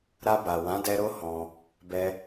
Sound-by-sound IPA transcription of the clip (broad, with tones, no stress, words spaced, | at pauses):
ɾa˧ba˨wã˨˦dɛ˧ ɾo˦hɔ̃˧ | bɛ˧